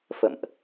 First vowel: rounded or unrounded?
unrounded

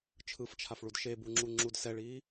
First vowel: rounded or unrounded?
unrounded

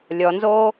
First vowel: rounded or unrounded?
rounded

